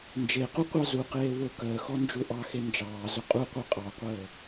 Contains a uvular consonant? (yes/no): yes